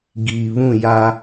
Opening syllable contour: low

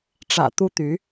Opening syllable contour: low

